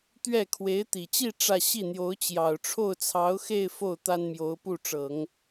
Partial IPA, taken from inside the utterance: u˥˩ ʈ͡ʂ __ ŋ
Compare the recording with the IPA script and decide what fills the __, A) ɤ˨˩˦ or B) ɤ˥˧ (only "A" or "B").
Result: A